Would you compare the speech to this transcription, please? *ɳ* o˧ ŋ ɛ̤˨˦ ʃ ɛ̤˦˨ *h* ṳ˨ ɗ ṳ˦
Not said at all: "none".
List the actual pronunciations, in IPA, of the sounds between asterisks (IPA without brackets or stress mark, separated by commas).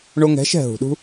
ɳ, ɦ